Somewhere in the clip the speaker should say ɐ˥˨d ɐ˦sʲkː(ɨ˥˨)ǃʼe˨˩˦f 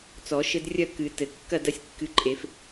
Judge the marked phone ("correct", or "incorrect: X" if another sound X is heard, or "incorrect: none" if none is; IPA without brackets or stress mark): incorrect: ɨ˨˦